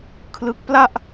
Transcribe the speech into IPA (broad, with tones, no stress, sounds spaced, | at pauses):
kʰ l ɯ˦˥ k̚ p l a˥˩ ʔ